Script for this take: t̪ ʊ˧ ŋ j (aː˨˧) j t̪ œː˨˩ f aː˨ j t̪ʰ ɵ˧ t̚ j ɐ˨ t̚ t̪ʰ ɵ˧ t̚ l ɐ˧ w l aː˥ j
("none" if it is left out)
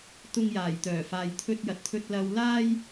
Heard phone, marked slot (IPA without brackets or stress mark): aː˨˩